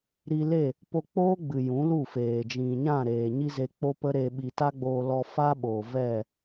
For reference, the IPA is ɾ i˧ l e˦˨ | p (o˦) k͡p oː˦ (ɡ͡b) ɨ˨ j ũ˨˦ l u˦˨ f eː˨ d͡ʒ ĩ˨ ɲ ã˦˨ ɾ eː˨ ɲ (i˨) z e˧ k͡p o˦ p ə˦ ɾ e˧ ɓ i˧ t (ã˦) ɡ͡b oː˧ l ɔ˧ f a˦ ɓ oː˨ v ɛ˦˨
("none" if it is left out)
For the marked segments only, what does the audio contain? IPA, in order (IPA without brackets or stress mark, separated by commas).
o˧, ɡ͡b, i˦, a˦